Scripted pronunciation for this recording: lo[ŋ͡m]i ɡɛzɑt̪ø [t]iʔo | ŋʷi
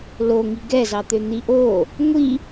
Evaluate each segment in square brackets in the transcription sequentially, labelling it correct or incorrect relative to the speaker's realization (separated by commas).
incorrect, incorrect